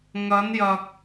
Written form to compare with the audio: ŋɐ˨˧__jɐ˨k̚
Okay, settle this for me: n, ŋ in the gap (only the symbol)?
n